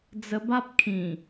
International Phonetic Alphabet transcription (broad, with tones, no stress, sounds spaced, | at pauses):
d͡z ə˧ b a˦ p̚ kʰ ĩ˨˩